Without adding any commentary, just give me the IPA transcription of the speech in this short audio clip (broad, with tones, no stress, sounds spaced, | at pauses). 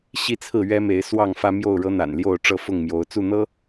ɕ i˥˨ t͡sʰ ɹ̩˥˨ ɥ ɛ˦ m e˨˦ ɪ̯ s w ɑ˥˨ ŋ f ä˦ m j o˥˨ ʊ̯ ɻ ɤ˦ n̪ a̰˨˩ n l j o˥˨ ʊ̯ ʈ͡ʂ ɤ˥˨ f ʊ˥˨ ŋ m j o˨˦ ʊ̯ t͡s u˥˨ n̪ ɤ˦